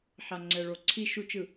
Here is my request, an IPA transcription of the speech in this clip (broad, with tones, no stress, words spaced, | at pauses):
ħa˨ŋ͡ǀɛ˨ɭo˨ ǀʰi˨ʃu˨t͡ʃɯ˨